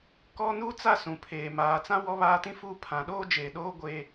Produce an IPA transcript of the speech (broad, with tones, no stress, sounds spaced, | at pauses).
k ɔ˦ n u˦ t͡s a˦ s ũ˨ pʰ eː˨ m aː˨ t͡s ã˦ w ɔ˦ β aː˦ t ĩ˦ f uː˦ pʰ ã˨ ɗ oː˦ d͡ʒ eː˨ ɗ oː˦ ɡʷ eː˦